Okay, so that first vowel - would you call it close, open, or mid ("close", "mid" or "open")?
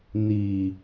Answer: close